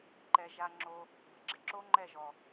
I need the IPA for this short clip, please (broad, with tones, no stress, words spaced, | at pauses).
ǃɛ˨ʒa˧ŋ͡ǁo˧ | bɪ˨ɡ͡ǁɪ˧ǁo˦ ŋ͡ǃɛ˦˨ʒɔ˨